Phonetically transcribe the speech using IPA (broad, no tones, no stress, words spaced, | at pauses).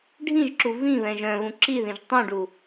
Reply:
ɖʱĩʒǁu vĩβɛ̃ ʒœ̃βũ ǁiðĩʒ tˤũɖu